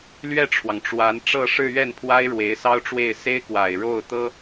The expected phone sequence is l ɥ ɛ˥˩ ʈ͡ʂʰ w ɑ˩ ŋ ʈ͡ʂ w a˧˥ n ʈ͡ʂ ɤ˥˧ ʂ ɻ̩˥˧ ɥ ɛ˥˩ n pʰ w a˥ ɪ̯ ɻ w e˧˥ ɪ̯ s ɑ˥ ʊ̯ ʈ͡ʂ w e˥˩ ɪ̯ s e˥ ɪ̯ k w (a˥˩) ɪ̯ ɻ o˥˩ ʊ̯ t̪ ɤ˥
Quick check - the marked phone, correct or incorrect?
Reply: incorrect: a˨˩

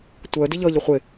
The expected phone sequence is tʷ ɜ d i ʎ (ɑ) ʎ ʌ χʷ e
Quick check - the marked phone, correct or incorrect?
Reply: incorrect: ʌ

